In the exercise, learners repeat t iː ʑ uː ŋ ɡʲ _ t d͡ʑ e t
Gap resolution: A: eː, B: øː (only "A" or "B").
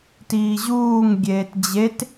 A